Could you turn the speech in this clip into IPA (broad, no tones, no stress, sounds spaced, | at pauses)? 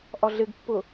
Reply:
ʔ ɒ ɮ ɪ ɡ pː ʊ